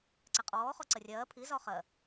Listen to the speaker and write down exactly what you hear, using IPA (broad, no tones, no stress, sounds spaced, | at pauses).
ǀ æ qʼ ɔː χ ɔ ǀ ə rʲ ɜː pʰ i z ɒ χ ɜ